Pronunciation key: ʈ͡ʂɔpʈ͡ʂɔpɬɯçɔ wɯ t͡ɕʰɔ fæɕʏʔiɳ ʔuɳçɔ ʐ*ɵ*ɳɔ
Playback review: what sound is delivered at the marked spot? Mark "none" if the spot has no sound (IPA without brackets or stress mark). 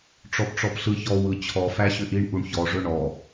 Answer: ɵ